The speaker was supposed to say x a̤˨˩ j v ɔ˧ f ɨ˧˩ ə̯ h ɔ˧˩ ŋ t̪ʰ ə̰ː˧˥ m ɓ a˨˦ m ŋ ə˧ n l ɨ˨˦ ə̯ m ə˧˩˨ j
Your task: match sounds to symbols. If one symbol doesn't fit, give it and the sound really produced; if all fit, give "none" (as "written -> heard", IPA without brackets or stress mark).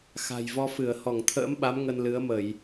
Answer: none